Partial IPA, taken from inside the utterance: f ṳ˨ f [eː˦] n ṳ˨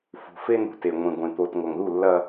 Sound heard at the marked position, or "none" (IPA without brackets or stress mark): e˦